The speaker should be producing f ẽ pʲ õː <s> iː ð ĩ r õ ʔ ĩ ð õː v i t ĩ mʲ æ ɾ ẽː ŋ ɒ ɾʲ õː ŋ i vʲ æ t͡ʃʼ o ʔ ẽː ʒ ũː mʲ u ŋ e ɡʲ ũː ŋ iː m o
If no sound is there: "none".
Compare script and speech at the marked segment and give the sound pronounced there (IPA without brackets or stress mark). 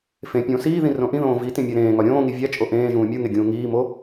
s